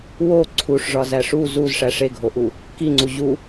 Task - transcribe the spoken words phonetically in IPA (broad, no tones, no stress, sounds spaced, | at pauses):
w o ǀʰ u ʂ ʐ ɒ z æ ʂ u z u z ʂ æ ʂ e ɡʱ o ʔ u | k i ŋ͡ǀ u ʑ u